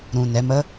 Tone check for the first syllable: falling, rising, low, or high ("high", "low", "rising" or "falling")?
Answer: low